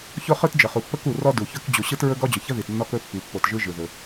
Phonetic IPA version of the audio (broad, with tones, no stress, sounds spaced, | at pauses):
ç o˥ χ ɯ˥ t d͡ʒ ə˩ χ u˩ pː ə˥ k u˩ r ɔ˥ d u˩ ç ɵ˥ k d͡ʑ u˩ ɕ ɯ˥ t ɹ ɵ˥ ɡ ɔ˥ d͡ʑ ɵ˩ ç ə˥ ð i˩ t nː ɔ˥ k ɵ˥ pː i˩ pː o˩ t ʒ ɯ˥ ʒ ɯ˩ ð ɵ˩